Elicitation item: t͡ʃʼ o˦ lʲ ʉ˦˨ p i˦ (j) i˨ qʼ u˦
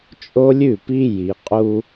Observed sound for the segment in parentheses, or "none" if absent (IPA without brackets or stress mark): j